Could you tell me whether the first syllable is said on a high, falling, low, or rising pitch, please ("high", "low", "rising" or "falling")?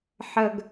low